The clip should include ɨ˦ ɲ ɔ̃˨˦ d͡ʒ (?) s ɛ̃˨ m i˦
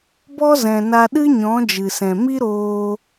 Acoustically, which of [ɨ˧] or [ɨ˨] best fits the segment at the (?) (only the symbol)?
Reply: ɨ˨